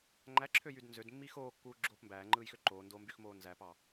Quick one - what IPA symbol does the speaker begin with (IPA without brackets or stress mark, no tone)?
ŋ͡ǃ